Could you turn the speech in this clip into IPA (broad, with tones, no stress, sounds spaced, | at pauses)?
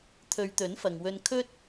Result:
t̪ʰ ɵ˨˧ ɥ t̪ ɵ˨˥ n f ɐ˨ ŋ w ɵ˧ n kʰ ɵ˥ t̚